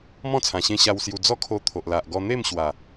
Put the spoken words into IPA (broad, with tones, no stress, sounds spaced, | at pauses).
m ɔ̃˥˧ t͡sʰ ã˨˩ ɕ ẽ˧ ɕ a˧ w s j u˧ d͡z ɔ˦ kʰ o˧ t̪ʰ o˨ ʔ l a˨ ʔ ɡ ɔ˧ n̪ e˥˧ m ɕ w a˨˩